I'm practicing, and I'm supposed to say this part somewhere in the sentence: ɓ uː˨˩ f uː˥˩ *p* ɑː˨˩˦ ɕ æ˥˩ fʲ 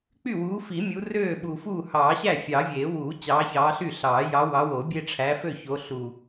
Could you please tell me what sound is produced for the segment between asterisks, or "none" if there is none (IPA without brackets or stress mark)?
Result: h